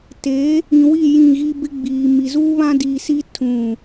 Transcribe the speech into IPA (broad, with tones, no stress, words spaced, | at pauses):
te˨˦ | ĩ˨wi˦˨ jĩ˦˨ɣi˦ bɪ˦ɡ͡biː˨mi˨ zuː˦βã˦diː˨si˦ tʰũ˦˨